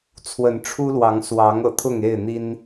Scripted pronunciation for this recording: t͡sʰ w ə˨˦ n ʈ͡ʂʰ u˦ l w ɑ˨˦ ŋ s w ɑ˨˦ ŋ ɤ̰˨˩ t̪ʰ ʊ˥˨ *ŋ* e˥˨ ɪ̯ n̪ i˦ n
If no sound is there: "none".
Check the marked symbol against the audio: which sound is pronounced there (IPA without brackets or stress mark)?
ŋ